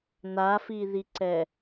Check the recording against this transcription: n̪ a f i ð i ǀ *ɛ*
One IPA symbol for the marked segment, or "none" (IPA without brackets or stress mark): ɛ